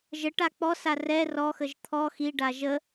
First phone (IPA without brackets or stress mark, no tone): ʒ